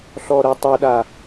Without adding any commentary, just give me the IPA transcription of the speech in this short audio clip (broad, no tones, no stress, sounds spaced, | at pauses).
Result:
ɬ ɔ ɾ ɜ tˤ ʊ ɗ a